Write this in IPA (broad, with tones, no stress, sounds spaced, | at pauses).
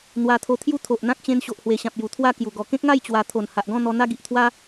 n̪ w a˧ t̪ʰ o˧ t̪ʰ j u˦ t̪ʰ o˨ ʔ n̪ ã˦ k̚ t͡ɕ ẽ˧ n ɕ o˨ ʔ h w e˨˩ ɕ ã˨ p̚ j u˨˩ t̪ʰ w a˥˧ k j u˨˩ ɡ ɔ˨˩ k ẽ˦ k̚ ŋ a˥˧ j t͡ɕ w a˧ t̪ʰ o˨˩ n h a˨ ʔ ɡ ɔ̃˥˧ n̪ ɔ˧ n̪ a˦ ɡ i˨ ʔ t̪ʰ w a˦